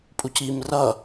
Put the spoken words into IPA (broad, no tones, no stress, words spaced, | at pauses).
pʼucim rʌ